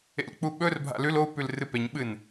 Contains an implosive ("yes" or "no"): yes